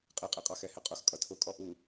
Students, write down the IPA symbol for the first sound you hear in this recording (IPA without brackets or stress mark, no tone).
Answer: qʼ